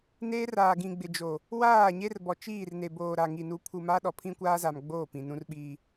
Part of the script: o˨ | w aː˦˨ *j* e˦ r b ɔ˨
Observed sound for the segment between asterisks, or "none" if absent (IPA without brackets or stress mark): ɲ